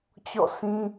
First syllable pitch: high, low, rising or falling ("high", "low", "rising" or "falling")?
falling